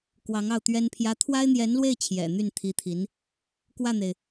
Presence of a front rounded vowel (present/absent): present